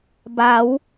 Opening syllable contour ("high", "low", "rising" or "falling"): rising